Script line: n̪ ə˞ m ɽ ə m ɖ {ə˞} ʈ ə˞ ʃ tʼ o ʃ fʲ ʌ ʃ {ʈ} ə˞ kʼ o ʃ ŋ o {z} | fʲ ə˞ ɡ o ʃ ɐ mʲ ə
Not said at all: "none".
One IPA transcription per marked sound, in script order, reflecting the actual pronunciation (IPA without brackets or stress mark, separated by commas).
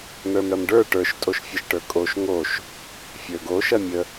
ə˞, ʈ, ʃ